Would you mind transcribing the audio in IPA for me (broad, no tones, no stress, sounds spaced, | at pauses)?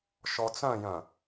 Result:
ʃ ɔ t͡s œ̃ j œ̃